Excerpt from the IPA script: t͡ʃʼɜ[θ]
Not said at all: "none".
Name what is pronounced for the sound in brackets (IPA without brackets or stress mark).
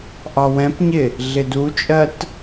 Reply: t